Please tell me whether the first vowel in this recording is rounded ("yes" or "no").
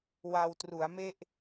no